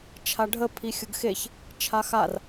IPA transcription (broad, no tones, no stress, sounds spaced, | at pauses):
t͡ʃʰ a ɖʱ ə pʰ i xʲ ə ɡ x e ç | t͡ʃʰ a x a r